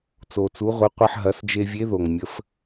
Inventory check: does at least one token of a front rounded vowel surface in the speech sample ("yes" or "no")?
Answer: no